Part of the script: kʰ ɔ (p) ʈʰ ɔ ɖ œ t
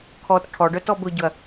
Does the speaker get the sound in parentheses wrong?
yes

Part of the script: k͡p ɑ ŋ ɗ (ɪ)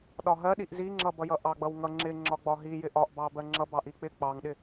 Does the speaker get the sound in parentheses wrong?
no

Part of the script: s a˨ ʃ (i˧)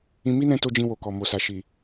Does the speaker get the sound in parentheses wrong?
yes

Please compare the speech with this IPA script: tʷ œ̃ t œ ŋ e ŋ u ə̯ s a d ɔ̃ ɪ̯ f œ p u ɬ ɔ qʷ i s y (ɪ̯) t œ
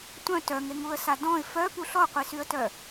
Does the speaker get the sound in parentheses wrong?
yes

